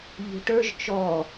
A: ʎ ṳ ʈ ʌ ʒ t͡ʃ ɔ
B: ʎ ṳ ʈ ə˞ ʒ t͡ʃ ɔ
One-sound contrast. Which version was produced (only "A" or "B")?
B